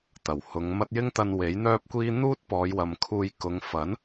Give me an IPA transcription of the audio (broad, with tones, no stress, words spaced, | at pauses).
t̪ɐ˨˩whʊ˨˧ŋmɐ˥t̚ jɪ˥ŋt̪ɐ˧n we˨˥jn̪œː˥p̚kʷiː˥ n̪uː˥t̚pɔː˨˧jwɐ˨m kʰuː˧j kʊ˨˧ŋfɐ˨˥n